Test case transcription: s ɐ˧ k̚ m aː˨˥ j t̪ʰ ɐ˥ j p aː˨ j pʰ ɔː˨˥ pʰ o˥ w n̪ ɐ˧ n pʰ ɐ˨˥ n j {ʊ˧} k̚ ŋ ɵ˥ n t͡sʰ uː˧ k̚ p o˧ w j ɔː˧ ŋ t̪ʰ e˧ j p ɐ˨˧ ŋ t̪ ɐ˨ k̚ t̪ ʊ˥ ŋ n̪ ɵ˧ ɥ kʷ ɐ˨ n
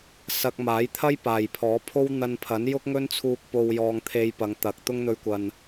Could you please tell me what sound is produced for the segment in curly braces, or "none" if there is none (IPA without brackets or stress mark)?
ʊ˥